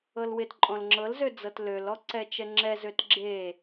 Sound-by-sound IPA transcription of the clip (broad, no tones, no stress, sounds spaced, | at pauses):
ɤ l w ɪ t ǃʼ ɔ̃ l ŋ͡ǁ ɤ l z ø d͡z ɤ t l ø l ɔ ǀ ɛ t͡ʃ ɛ ŋ͡ǁ ɛ z ø t ɡ͡ǁ e